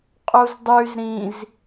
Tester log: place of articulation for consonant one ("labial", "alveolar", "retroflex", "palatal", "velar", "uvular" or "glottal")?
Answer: uvular